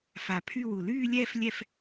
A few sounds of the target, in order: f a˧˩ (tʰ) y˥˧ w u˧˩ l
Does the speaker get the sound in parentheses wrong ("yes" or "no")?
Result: yes